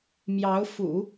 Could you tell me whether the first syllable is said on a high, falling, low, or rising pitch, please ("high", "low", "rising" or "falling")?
rising